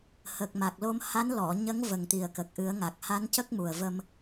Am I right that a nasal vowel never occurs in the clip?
yes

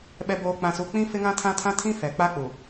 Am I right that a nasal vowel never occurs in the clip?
no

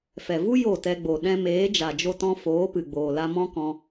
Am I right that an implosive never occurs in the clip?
no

